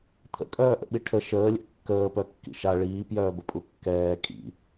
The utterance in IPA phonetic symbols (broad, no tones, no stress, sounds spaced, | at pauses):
t̪ʰ ə̰ kʼ œː ʔ ə̰ ɓ i ʈʰ ə ʃ əː lʲ ɛ̰ kː əː p œ kː ḭ ʃ a ɭ iː p j œː b ə pʼ u kː ɛː kʼ ḭ